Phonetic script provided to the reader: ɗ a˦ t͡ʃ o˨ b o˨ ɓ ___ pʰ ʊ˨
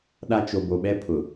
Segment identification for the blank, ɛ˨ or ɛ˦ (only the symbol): ɛ˦